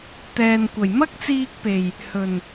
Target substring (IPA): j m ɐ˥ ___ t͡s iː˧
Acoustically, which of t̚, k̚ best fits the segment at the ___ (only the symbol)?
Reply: k̚